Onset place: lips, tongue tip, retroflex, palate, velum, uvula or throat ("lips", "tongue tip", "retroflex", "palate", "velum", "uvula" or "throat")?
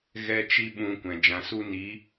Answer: velum